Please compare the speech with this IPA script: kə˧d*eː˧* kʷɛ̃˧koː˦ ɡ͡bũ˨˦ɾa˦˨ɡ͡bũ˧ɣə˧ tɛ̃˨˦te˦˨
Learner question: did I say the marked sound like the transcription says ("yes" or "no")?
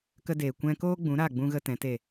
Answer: no